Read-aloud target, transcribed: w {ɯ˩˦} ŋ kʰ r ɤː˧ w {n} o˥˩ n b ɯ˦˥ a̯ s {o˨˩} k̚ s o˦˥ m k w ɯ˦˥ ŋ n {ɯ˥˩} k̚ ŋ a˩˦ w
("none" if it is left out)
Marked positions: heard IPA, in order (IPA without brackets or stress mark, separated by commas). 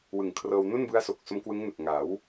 ɯ˨˩, n, o˨˩, ɯ˨˩